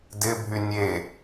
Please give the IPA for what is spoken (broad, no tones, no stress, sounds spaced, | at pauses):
d ɪ bʱ y nʲ e